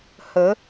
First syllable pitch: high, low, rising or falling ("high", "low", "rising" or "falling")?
rising